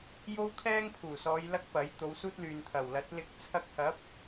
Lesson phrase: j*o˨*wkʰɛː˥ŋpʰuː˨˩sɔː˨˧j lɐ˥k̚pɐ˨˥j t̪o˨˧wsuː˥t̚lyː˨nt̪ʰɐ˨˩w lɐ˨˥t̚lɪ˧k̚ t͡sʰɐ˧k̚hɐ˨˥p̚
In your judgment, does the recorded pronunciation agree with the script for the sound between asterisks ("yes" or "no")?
no